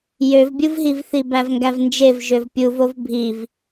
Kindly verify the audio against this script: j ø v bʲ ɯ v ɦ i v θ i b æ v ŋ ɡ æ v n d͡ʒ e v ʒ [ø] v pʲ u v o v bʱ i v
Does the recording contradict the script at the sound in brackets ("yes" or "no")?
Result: no